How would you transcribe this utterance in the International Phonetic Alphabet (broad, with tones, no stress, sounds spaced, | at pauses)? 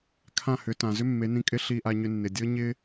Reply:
kʰ ã˦˨ h ʏ˨˦ t ã˨ z ʏ˦ mː e˨˦ n ĩ˧ kʼ ɪ˦ ɬ i˧ ʔ a˧ ɲ ʏ˧ nː ɪ˨ dʲ ɤ˦ ɲ ɪ˦